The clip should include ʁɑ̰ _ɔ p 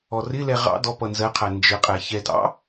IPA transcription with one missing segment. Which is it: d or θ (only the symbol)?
d